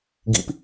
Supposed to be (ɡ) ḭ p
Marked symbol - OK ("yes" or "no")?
yes